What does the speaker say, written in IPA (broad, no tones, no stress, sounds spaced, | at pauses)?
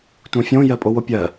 t ũ fʲ õ j ɜ pʼ o w o pʲ ɜ